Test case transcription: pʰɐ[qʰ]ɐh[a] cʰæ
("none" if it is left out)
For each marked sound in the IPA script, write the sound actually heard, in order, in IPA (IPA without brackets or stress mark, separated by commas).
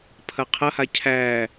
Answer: qʰ, a